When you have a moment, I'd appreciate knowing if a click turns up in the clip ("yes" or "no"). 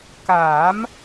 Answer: no